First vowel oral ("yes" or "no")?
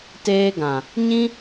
yes